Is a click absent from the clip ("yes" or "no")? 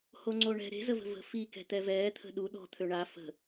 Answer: no